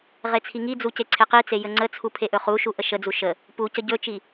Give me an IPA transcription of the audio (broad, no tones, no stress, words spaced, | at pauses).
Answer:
ʁet͡sʰiŋid͡zu ceǀʰeqit͡se jəŋ͡ǀət͡sʰu pʰeʔɵχuʃu ʔəʃəd͡zu ʃə | pu cəɟɵt͡ʃi